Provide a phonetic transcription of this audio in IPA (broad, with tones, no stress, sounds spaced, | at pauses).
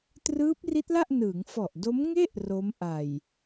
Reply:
t r ɯː˦˥ p̚ r i˦˥ t̚ l a˥˩ ʔ n ɯː˩˦ ŋ f ɔ˨˩ ʔ d o˦˥ m ŋ e˥˩ ʔ r o˦˥ m ʔ a˨˩ j